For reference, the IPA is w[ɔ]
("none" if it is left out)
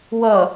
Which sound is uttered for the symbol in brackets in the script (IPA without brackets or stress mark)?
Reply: ʌ